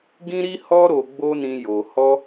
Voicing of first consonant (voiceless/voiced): voiced